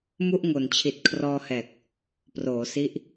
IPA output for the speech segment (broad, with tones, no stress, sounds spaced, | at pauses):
m u˥˩ ʔ ŋ o˨˩ n t͡ɕʰ i˨˩ t̚ kʰ r ɔː˧ h ɛː˨˩ k̚ | p r oː˩˦ s i˦˥ ʔ